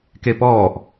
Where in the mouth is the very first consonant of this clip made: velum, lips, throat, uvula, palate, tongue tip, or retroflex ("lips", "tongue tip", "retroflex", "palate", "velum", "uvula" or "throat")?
velum